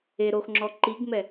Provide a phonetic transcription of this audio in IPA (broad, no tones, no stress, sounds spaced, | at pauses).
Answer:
e ɾ o x ŋ͡ǁ ɔ ǃ i ɡ m ɛ